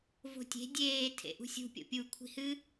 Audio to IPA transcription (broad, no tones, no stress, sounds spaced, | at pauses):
v o̤ tʲ e̤ dʲ eː tʰ ḛ ʔ ṳ sʲ ṳ pʲ o̰ pʲ u kʷʰ i̤ h ɨ